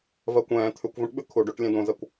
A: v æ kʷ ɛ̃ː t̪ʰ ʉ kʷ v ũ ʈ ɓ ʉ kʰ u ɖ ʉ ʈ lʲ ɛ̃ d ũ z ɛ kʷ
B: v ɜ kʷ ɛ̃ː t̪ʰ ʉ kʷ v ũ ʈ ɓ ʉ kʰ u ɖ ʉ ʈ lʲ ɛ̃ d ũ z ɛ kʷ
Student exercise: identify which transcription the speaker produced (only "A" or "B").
B